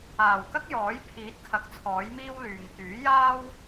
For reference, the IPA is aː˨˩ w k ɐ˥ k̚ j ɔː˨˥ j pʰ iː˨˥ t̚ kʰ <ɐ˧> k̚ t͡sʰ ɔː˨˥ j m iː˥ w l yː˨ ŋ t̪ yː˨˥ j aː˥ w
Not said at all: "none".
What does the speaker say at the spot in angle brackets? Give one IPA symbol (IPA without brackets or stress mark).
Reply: ɐ˨˥